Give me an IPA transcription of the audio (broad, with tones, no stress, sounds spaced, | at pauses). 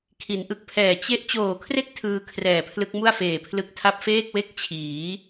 kʰ i˩˦ n ʔ ɯ˨˩ k̚ pʰ ɛː˨˩ t͡ɕ e˦˥ ʔ t͡ɕ oː˨˩ kʰ r e˥˩ k̚ tʰ ɯː˧ kʰ r ɛː˨˩ pʰ l ɯ˦˥ k̚ m u˥˩ a̯ f eː˨˩ pʰ l ɯ˦˥ k̚ tʰ a˥˩ p̚ f eː˥˩ k̚ w e˥˩ k̚ t͡ɕʰ iː˩˦